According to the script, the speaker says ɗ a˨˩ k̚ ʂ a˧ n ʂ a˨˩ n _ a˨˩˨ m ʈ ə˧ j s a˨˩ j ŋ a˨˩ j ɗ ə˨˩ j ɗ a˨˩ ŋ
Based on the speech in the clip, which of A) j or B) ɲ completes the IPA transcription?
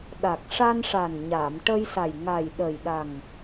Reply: B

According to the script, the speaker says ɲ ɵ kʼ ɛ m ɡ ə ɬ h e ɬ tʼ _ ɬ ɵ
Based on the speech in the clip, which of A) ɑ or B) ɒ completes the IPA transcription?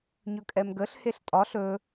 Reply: B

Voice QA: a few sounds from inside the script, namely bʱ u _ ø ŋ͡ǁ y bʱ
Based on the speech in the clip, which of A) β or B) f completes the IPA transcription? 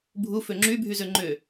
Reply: B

